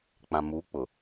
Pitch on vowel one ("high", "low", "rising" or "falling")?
low